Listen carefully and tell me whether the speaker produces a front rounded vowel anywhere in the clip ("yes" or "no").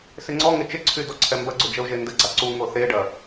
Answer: yes